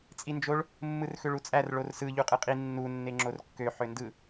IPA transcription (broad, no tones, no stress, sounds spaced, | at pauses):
t͡sʼ i n d͡ʒ o ɭ | mː ɯ r x ø ɭ u t͡sʼ æ r ɭ o r s ɯ ʎ u qʼ ɯ qʼ i nː u nː e ŋ͡ǁ o r kː ø ħ ø n d ɯ